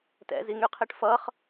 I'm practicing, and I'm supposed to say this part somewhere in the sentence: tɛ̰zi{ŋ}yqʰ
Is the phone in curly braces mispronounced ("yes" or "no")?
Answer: no